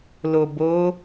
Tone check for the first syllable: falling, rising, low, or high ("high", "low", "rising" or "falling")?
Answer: low